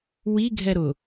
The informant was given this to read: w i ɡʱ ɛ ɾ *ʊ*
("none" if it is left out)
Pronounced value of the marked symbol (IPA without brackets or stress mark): ʊ